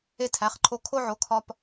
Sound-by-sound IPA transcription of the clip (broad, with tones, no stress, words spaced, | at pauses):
e˧tʰæ˩˧˩χǃʰo˧ kʰo˧ʕo˩˧˩ kʰɒ˧p